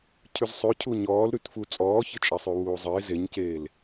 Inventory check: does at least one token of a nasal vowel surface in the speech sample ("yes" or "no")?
no